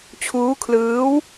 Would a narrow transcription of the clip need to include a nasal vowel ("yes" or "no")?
no